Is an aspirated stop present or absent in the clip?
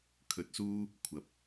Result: present